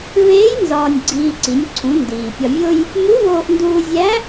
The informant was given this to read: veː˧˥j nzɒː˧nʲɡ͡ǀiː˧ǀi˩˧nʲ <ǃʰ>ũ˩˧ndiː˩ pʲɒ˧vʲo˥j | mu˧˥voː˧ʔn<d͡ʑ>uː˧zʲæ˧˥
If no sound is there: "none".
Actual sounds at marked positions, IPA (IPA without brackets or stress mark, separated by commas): ǀʰ, d